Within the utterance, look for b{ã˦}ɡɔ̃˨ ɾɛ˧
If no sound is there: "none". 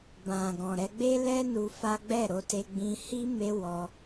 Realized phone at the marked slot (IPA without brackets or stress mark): ã˨